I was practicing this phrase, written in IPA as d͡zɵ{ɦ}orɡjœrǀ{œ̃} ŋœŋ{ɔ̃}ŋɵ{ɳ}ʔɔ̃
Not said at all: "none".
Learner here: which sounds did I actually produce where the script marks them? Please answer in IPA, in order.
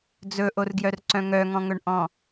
ʔ, œ̃, ɔ̃, ɳ

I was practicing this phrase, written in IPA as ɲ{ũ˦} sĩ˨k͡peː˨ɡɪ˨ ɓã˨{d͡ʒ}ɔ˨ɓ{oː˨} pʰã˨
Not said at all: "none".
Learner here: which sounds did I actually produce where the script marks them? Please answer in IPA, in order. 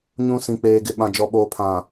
ũ˦, d͡ʒ, oː˨

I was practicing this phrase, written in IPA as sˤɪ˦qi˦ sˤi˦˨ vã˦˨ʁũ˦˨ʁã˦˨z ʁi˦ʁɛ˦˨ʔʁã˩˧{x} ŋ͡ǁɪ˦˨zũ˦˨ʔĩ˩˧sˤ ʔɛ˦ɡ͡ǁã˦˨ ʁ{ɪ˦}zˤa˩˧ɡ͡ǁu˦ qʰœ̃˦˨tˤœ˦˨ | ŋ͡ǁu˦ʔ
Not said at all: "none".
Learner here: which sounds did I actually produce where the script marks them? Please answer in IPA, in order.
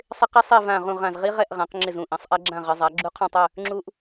q, ɪ˩˧

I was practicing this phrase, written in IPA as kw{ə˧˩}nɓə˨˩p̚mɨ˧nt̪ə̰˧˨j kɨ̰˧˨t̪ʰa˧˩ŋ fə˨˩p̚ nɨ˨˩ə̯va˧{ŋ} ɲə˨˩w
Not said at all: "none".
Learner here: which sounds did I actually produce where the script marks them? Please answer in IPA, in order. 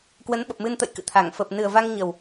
ə˨˦, ŋ

